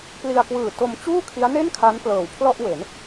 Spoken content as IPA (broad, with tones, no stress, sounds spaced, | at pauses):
p l i˧ a̯ k w ɯː˨˩ t o˧ m t͡ɕ uː˥˩ kʰ i˦˥ a̯ n e˥˩ n kʰ a˦˥ n p l ɤː˨˩ w pʰ l ɔ˥˩ ʔ w e˩˦ n